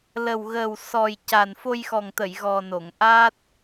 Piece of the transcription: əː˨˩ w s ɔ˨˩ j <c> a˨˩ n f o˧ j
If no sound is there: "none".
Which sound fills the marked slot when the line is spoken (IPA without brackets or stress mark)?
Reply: c